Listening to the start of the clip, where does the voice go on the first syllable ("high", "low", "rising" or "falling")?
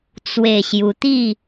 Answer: falling